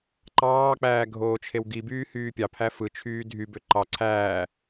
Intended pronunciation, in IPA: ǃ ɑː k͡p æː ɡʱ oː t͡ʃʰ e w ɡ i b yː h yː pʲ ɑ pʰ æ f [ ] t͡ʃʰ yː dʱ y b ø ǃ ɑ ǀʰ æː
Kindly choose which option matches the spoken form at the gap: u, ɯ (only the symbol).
ɯ